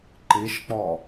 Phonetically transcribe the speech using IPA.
ǃ i ʃ k͡p ɔ

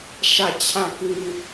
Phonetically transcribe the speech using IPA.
ʃ ä˦˨ t͡ɕʰ ã˦˨ k ĩ˦

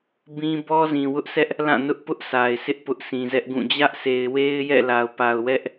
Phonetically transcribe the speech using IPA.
b ĩ˦ b ɔ˦ z ĩ˨ w ʊ˦ ʔ s ɛ˦ ʔ | l ã˦˨ n ʊ˦ ʔ p ʊ˦ ʔ sʰ a˨ ɪ̯ sʰ ɪ˦ ʔ p ʊ˦ ʔ sʰ ĩ˨ z ɛ˦ ʔ ɡ ũ˦˨ d͡ʑ ä˦ ʔ s e˨ ɪ̯ w e˦ ɪ̯ j ɛ̰˦˨ l a˨ ʊ̯ p a˨ ʊ̯ w ɛ˦ ʔ

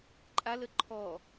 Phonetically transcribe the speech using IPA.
ǃʼ a l ə ǃʰ ɔ

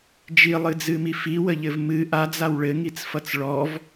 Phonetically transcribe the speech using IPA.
d͡ʒ i lˠ ɨ d͡z ɨ m i f i w ə ʎ ɘ v m ɨ ʔ a d͡z a w ɭ ɘ ŋ i t͡s f ʌ t͡s ɭ ɔ v

